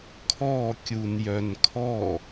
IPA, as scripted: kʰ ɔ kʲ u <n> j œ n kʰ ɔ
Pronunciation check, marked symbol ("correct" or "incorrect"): correct